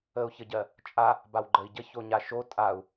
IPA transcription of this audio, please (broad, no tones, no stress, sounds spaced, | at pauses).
ə u̯ ç ə ɟ ɜ | t͡ʃʼ a | b a w ɡ͡ǃ ə i̯ ɟ ə ç o ɲ a ʃ o tʼ a u̯